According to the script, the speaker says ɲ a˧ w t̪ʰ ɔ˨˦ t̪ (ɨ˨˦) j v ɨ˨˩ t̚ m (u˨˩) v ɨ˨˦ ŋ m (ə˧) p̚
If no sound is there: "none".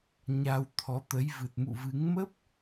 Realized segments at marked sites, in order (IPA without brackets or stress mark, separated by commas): ə˨˦, ṵ˧˨, ə˦˥